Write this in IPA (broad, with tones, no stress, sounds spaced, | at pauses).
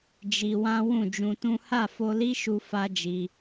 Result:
d͡ʒ i˧ w ã˦ w ũ˦˨ d͡ʒ ũ˧ t ũ˦ h a˦˨ f o˧ l i˦ ʃ u˧ f a˦ d͡ʒ i˧